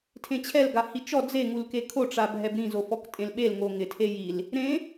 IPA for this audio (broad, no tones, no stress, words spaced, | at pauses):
tʰẽt͡ɕʰɛl ɡahit͡ʃɔ d͡ze ŋulkekʰo ʈ͡ʂabʱɛbɾĩ zofɔktʼẽlɓel ŋoŋɪ tʰejil | ɾẽ